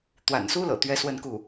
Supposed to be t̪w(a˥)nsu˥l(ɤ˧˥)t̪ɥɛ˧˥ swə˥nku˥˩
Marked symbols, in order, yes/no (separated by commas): no, no